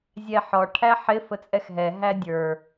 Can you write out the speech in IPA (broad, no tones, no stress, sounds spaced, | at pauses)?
zʲ ɛ ħ ɔ ʈʰ æ ħ ɪ f ə t͡sʼ ɛ x ɦ ɛ ɦ æ dʲ ə˞